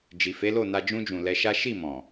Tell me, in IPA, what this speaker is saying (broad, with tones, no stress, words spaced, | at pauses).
d͡ʒi˨fe˨˦lo˦˨na˧ d͡ʒũ˧d͡ʒũ˨ lɛ˧ʃa˦ ʃi˦˨ mɔ̃˨